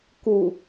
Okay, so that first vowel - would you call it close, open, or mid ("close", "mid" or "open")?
close